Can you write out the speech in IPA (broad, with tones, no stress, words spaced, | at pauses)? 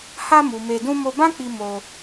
ha˧mu˨ me˧dũ˦ mo˧bã˦k͡pi˧ mo˧